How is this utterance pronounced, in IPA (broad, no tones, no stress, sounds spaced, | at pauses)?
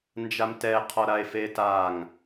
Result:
n d͡ʒ a m t ɛ qʰ ɔ ɾ a e̯ f e t a ŋ